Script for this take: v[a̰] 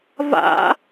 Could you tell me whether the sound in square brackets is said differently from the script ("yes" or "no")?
no